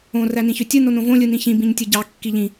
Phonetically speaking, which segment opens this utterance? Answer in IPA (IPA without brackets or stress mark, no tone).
õ